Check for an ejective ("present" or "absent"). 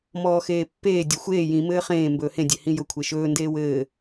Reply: absent